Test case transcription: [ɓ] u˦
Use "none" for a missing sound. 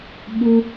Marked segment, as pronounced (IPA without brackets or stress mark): ɓ